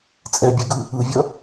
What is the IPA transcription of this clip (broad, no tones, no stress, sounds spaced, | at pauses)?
t͡sʼ ɛ bʲ ɛ ɡ ɯ | ɯ vʲ ʌ